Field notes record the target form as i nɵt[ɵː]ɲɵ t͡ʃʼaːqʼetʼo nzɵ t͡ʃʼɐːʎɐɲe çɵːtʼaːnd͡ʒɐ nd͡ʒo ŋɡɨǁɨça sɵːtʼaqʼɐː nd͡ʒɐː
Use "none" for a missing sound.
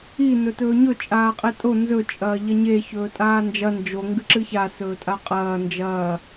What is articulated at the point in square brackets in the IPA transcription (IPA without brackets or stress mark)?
ɵː